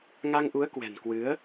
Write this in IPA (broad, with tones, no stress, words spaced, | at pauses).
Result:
ŋa˧ŋʔu˨˦ə̯kwɛ̤˨˩nkwɨ˨˦ə̯